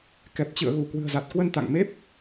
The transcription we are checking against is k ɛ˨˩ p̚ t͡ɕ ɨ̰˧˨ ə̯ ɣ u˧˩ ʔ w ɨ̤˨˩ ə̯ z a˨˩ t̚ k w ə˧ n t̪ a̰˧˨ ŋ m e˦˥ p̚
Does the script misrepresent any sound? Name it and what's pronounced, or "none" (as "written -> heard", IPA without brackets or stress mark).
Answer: ʔ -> k